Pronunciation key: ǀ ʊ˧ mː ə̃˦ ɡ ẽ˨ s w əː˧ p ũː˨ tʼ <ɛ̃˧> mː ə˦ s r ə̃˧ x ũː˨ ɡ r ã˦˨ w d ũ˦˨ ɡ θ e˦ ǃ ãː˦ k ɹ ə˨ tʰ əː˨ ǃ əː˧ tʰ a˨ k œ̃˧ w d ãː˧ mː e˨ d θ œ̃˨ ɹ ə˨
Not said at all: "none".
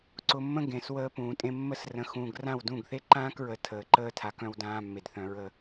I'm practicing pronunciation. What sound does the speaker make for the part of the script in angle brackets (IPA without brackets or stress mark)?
ẽ˧